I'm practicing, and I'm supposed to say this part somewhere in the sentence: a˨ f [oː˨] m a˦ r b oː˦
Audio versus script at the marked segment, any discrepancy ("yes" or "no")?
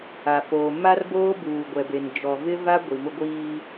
no